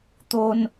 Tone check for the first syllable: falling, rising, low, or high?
high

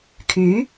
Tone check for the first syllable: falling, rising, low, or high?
rising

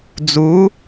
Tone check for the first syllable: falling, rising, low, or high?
rising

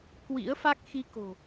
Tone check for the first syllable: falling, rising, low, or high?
rising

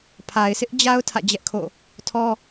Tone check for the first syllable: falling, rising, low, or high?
low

